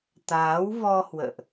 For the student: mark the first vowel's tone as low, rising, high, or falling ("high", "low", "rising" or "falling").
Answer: rising